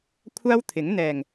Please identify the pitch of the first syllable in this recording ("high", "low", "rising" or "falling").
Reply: high